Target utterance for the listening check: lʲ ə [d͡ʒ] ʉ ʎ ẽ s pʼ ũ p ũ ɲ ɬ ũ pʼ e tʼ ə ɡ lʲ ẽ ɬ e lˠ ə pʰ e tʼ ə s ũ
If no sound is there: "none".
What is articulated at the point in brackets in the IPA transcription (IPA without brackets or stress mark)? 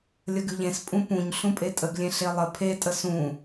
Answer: ɡ